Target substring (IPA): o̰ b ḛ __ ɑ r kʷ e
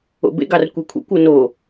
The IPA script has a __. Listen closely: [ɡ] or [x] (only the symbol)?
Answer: ɡ